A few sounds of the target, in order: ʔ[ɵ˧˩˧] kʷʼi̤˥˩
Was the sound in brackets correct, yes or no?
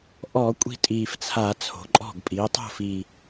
no